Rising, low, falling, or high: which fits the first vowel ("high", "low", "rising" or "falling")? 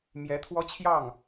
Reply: rising